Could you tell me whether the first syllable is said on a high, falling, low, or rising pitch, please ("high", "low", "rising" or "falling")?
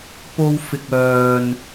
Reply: high